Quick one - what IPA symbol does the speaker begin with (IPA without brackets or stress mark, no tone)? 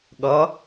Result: ɠ